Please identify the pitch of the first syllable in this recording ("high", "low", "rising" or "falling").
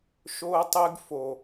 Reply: high